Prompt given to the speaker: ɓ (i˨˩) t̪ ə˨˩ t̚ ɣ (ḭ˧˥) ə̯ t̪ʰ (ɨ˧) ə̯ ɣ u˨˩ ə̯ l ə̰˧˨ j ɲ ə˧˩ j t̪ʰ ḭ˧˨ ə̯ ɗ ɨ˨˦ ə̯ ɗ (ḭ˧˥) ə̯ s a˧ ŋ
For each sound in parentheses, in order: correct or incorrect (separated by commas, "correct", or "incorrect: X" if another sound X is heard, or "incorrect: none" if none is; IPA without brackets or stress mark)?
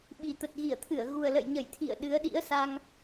correct, incorrect: i˧˩, incorrect: ɨ˧˩, correct